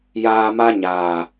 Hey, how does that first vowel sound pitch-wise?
low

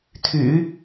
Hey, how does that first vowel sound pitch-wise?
low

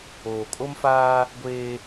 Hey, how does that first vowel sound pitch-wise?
low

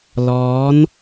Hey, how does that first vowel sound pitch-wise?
rising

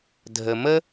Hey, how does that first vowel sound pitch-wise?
low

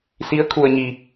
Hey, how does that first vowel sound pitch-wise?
rising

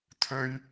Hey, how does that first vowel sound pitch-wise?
low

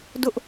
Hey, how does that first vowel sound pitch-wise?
high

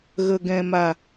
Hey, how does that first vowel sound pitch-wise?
low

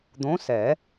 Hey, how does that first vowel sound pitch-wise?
rising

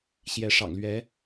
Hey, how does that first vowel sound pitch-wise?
rising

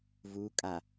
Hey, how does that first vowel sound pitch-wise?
rising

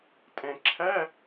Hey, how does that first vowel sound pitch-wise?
low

